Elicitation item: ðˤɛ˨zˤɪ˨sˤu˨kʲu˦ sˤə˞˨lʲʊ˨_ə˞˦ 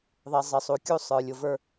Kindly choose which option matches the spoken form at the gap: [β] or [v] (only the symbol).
v